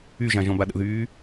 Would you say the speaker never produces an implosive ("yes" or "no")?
no